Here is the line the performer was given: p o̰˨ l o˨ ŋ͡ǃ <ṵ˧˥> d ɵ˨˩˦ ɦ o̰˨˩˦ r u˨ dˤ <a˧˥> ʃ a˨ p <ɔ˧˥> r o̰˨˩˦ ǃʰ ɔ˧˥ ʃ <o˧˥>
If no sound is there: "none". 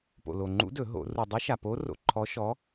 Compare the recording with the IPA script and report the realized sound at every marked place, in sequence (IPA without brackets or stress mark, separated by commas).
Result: ṵ˧˥, ə˧˥, o˧˥, ɔ˧˥